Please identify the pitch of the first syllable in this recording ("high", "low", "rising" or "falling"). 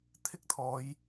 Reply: high